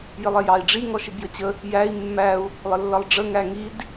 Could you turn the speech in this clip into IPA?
jɪlˠɛjɑi̯ɖ͡ʐi ŋɔʃɪbjət͡ɕə | jæi̯ mːæu̯ | lˠəlːʌlˠɖ͡ʐə ŋæŋid

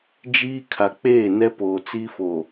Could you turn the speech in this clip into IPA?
d͡ʒiː˦ kʰa˨k͡peː˦˨nɛ˦poː˨ t͡si˦fo˨

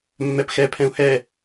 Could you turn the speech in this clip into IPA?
mːɛpxɛ pʰɛ̃u̯hɛ

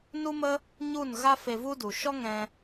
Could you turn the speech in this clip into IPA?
nu˦mə˦ | ɲu˦˨nɣa˦ fe˧vu˦du˨ ʃɔ˦ŋɛ̃˧

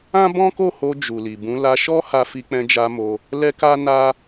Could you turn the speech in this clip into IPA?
ã˦bɔ̃˦ko˦˨ho˧ d͡ʒu˨li˨bũ˨˦ la˧ʃɔ˦ ha˧fi˧k͡pɛ̃˧d͡ʒa˧ mo˧ | lɛ˦ka˦ na˦

